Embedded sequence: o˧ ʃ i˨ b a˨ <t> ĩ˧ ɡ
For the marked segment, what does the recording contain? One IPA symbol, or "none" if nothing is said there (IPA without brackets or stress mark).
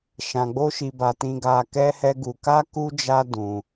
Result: t